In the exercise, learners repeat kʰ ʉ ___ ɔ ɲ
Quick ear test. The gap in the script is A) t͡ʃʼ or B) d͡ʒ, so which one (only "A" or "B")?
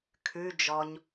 B